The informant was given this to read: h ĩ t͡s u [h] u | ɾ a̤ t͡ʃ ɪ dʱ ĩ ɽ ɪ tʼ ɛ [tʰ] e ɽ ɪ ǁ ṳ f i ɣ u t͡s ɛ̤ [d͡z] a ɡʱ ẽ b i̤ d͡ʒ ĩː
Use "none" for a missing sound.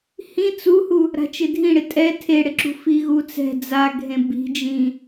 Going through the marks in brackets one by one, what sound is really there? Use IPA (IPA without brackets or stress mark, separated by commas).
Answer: h, tʰ, d͡z